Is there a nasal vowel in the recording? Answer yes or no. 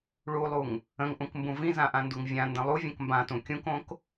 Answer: yes